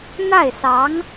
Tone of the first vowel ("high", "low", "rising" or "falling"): falling